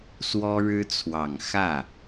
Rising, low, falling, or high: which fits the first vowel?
high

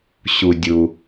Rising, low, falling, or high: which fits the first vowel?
low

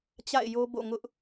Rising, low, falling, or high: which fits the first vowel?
falling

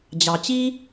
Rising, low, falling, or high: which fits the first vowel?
low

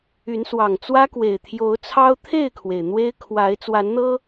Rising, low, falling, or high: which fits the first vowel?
rising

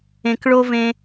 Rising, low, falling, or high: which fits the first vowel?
low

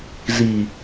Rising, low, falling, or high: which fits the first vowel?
low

